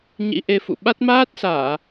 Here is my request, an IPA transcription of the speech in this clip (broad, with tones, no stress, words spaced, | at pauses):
ɲḭ˧˥ʔe˧ fṵ˧˨ ɓa˦˥t̚ maː˦˥t̚saː˧˩˨